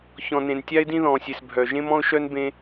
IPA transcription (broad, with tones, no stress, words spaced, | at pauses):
çɔ̃˨nẽ˨n tʲa˦ɪ̯dĩ˦ðɔ̃ː˨sʲe˨s bʱœː˨ ʒẽ˦mɔ̃˦ʊ̯ʃœ˦n bẽ˦